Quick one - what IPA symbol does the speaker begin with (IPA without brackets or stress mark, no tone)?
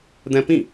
d̪